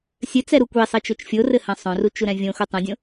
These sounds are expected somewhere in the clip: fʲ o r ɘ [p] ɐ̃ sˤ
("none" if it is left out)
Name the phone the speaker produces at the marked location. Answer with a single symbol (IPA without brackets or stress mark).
h